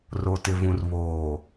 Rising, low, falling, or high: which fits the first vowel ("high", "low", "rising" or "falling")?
low